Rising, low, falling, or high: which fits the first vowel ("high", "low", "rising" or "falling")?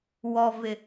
low